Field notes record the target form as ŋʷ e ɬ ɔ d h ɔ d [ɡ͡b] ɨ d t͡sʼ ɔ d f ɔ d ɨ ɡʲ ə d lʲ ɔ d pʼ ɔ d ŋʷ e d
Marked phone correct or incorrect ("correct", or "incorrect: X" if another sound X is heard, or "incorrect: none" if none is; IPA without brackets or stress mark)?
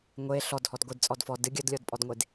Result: incorrect: ɡʷ